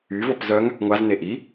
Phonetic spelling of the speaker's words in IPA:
y v ɔ p z œ ŋ | ŋʷ a z n e ʔ i

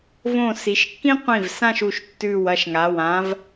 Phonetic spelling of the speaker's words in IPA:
v õ˧˩ s i˩˧ ʃ kː ĩ˥ qʷ ĩ˧˩ v s ã˥˧ ʃ u˩˧ ʃ tː ʉ˧˩ w ɐ˥˧ ʃ ŋ a˩˧˩ w ã˧˥ v

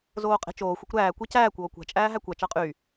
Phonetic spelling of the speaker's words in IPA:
z oː qʼ e̤ t͡ʃ oː xʷ o kʷ ɾ æː kʷ e c æː kʷ oː kʷ æ̤ t͡ʃʼ æː ɦ æ kʷ æ t͡ʃ ɑ qʼ y

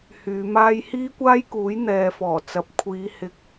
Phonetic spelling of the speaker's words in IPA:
h yː˨˧ m aː˥ j h iː˥ kʷ aː˥ j k uː˨˥ j n̪ ɛː˨˧ f ɔː˨˩ t͡s ɐ˨ p̚ kʷʰ iː˨˧ h ɪ˨ k̚

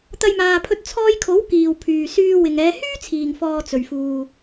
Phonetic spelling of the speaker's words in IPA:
t̪ ɐ˧ j m aː˨ pʰ ɵ˧ t̚ t͡sʰ ɔː˧ j kʰ o˨˥ w k iː˨ w pʰ yː˨ s yː˧ w ɪ˨ ŋ ɛː˨˧ h yː˥ t͡sʰ iː˨ ŋ f ɔː˧ t͡s ɵ˨ ɥ f uː˧

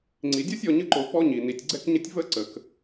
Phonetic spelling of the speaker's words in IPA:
ŋ͡ǀ i˩ dʲ ɔ˥ sʲ ɔ˨ ɲ ə˦ ǃ o˨ p ɔ˥ ɲ i˩ n i˩ tʲ ɡ͡ǀ ɛ˦ k ɲ ə˦ tʲ v ə˦ ǀ ə˩ k

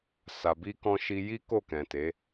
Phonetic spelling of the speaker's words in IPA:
s a˨ b i˧ k ɔ̃˧ ʃ i˧ j i˦ k o˦˨ k ɛ̃˨ t e˨˦

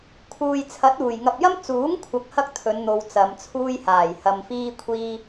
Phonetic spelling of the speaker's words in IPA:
kʰ uː˨ j t͡sʰ ɐ˨˥ t̚ uː˨˩ j ŋ ɐ˨ p̚ j ɐ˥ m t͡s uː˨˥ ŋ kʷʰ ɐ˨ k̚ h ɐ˥ k̚ t̪ʰ ɵ˨˧ n n̪ o˨ w t͡s ɐ˨˧ m t͡sʰ uː˥ j h aː˨˩ j h ɐ˧ m f iː˥ kʷʰ iː˥

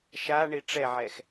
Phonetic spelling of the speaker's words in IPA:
ʃ a ɳ i ʈ͡ʂ ɛ ʕ ɛ x

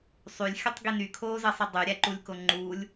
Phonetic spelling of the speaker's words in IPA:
sˤ y lʲ xʲ ə tˤ ɡ i n y kʰ oː z əː sˤ i dˤ y ɾʲ æ ǃ u lʲ k o ŋ͡ǃ u lʲ

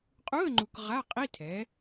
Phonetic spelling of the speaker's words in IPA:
qʼ u˧˥˧ ə̯ ŋ͡ǃ u˨ k ʁ a˧˥˧ qʼ i˧˥˧ tʰ ɛ˩˥

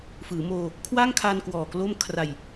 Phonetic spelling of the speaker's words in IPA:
f ɯː˩˦ m oː˧ | kʰ w a˥˩ ŋ kʰ a˧ n k w ɔː˨˩ k l o˥˩ m kʰ r a˨˩ j

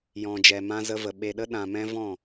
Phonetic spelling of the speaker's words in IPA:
j ɔ̃˨ d͡ʒ ɛ˨ m ã˧ z ə˧ v ə˨ ɓ e˨ ɗ ə˧ ɗ ã˨ m ɛ̃˧ v ɔ̃˦˨

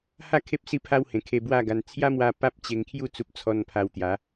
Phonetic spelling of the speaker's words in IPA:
h a˥˧ kʰ e˦ p̚ s i˦ pʰ a˦ w h ẽ˨˩ kʰ e˧ b w a˥˧ ɡ a˧ n t͡sʰ j a˦ m w a˧ p a˦ p̚ t͡ɕ e˧ ŋ kʰ j u˥˧ t͡s u˦ p̚ t͡sʰ ɔ˦ n pʰ a˧ w t̪ j a˨˦

